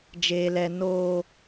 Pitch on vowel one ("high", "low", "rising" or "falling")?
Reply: high